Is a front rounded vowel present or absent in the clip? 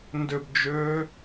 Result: present